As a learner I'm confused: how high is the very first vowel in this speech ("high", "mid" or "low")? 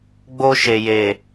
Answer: mid